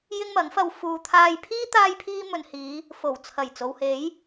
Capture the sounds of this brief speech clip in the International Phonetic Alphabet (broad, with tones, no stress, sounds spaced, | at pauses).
j ɪ˥ ŋ m ɐ˨˥ ŋ f ɐ˧ w f uː˧ t̪ʰ aː˧ j pʰ iː˥ t̪ aː˥ j pʰ iː˥ m ɵ˨ n h iː˨˧ | f o˨˩ w t͡sʰ ɐ˨˩ j t͡s o˨ w h e˨˥ j